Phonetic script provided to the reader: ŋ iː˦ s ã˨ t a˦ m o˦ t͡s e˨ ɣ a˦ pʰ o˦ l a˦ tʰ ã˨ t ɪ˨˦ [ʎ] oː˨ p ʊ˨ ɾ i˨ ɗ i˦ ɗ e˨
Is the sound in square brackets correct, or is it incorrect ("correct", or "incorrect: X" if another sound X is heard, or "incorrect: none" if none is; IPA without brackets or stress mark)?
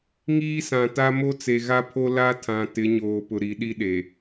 incorrect: ɲ